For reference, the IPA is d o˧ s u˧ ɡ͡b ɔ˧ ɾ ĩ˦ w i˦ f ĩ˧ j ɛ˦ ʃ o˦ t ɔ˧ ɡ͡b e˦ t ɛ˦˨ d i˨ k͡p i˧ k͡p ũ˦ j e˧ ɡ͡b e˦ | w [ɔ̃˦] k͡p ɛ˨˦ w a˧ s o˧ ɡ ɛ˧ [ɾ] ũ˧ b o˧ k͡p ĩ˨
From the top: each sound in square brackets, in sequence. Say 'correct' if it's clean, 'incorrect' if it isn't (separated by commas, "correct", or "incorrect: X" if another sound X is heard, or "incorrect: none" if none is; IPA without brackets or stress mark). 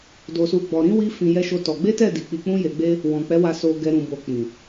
incorrect: ɔ̃˨, correct